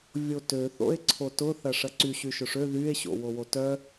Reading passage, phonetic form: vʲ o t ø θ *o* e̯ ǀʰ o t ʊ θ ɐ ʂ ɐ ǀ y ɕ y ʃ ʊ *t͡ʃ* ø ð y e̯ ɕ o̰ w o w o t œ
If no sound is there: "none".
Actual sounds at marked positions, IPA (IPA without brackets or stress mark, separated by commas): o̰, ʂ